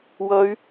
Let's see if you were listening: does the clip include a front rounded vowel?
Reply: yes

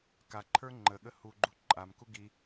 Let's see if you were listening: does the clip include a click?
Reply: yes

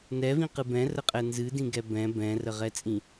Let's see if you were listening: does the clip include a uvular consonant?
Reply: yes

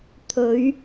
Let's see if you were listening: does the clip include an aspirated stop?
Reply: yes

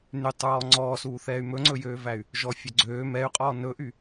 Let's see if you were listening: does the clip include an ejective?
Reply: yes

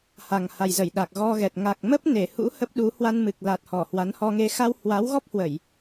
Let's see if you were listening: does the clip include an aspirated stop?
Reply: no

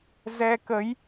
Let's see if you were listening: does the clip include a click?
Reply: no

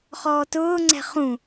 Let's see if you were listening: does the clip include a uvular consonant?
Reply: yes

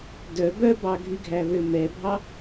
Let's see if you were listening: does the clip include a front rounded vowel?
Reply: yes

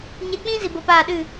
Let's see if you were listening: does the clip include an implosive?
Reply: yes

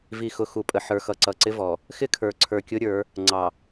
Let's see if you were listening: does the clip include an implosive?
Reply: no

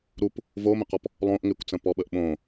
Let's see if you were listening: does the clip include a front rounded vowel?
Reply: no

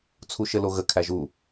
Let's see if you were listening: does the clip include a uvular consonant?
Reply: no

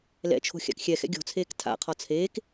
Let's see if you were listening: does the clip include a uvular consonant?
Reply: yes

